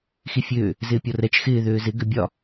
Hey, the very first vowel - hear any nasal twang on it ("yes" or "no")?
no